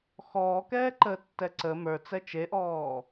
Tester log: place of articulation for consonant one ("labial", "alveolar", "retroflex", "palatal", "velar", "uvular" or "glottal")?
velar